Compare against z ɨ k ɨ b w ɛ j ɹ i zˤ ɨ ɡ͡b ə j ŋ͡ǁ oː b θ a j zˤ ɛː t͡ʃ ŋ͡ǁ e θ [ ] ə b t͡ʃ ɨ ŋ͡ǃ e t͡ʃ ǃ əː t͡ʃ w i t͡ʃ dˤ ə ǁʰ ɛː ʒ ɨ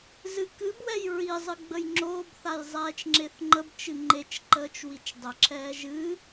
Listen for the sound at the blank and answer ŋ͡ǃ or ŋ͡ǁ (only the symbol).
ŋ͡ǃ